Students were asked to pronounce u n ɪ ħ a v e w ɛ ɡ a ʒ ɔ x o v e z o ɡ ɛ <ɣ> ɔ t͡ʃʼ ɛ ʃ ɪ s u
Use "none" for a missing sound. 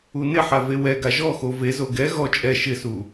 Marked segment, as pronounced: ɣ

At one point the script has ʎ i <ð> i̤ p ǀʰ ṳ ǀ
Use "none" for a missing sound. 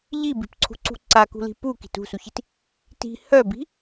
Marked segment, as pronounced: b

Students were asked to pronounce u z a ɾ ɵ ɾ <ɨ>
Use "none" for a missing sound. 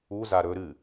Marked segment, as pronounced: ɨ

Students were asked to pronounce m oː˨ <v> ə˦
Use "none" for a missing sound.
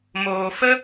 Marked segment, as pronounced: f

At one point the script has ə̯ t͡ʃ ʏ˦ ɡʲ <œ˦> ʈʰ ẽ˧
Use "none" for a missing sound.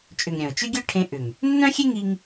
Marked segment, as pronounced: œ˦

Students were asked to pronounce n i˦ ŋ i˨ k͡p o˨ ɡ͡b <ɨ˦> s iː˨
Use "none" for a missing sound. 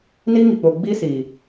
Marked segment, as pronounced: i˦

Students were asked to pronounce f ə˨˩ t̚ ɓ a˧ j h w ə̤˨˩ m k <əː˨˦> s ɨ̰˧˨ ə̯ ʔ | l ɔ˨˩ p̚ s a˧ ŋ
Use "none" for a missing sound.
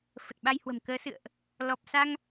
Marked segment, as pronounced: əː˨˦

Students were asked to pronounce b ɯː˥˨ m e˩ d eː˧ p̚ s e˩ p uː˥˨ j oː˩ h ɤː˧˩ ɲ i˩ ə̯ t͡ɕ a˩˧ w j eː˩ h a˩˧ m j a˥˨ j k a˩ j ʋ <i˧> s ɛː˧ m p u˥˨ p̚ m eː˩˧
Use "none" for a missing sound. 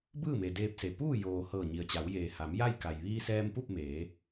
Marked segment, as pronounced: iː˧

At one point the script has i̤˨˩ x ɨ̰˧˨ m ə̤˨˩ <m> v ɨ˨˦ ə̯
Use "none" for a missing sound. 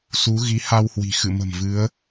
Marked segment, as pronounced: m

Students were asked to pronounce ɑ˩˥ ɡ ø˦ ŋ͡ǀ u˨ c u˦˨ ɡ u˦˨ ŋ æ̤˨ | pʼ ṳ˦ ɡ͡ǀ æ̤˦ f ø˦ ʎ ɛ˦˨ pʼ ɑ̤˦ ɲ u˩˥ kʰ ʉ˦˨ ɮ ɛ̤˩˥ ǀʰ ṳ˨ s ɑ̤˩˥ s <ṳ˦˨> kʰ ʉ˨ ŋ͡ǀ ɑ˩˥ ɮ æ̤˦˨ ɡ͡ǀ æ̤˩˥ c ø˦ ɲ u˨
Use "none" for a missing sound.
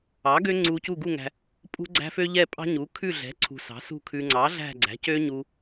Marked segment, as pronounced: ṳ˦˨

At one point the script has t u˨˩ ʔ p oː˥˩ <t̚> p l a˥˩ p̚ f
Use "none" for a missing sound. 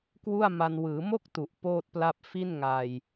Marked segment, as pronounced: t̚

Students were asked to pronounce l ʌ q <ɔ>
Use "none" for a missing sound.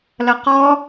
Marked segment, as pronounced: ɔ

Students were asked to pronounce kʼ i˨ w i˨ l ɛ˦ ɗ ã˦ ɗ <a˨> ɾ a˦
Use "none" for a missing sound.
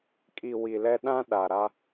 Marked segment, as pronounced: a˨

